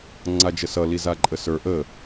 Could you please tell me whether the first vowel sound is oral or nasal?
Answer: oral